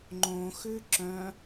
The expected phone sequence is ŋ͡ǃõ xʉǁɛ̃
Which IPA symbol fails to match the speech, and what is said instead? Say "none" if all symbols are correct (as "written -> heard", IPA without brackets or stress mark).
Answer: ɛ̃ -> œ̃